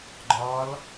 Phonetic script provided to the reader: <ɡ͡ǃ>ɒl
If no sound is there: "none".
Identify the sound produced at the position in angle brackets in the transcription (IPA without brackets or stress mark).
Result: ɡ͡ǃ